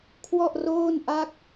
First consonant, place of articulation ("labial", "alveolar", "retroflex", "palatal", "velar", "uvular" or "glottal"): velar